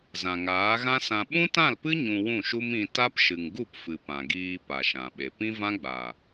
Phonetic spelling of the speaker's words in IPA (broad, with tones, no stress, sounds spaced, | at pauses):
z ã˨ ŋ aː˨˦ ɣ ã˦ s ã˧ ɓ ũ˦ t ã˦˨ l p ɨ˦ ɲ ũ˧ w ũ˦˨ ʃ u˦ m ĩ˧ t a˦ p ʃ ɨ˨ ŋ ɡ u˦˨ p f ɨ˨ p ã˨ ɡ iː˧ p a˨ ʃ ã˨ ɓ e˨ p ĩ˦ v ã˦ ɡ͡b a˨